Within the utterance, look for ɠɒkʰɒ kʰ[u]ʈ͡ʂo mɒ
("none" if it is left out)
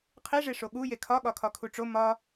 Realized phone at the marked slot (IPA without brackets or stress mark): u